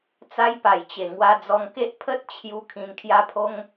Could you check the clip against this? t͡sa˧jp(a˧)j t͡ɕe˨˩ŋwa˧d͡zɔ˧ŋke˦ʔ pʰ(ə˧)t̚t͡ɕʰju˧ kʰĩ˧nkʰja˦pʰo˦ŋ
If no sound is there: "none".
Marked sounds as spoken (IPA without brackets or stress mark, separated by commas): a˨˩, ə˦